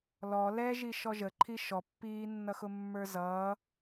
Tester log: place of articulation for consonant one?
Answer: alveolar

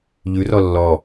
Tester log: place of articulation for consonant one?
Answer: palatal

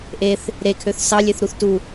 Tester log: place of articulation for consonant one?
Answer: glottal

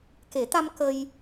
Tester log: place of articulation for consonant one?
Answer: velar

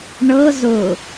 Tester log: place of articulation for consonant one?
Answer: retroflex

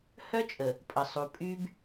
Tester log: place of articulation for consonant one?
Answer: glottal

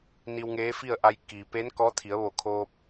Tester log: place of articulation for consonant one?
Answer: alveolar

